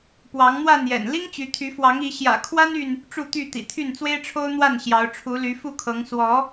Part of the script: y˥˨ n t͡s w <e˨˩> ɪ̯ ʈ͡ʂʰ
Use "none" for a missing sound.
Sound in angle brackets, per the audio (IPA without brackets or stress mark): e˦